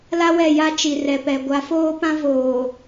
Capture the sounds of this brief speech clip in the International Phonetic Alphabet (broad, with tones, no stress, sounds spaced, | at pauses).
l a˦ w ɛ˦˨ j a˦ t͡ʃ i˨ r ɛ˨ p ɛ˨ ɡʷ a˨˦ f oː˦ p ã˦ v oː˨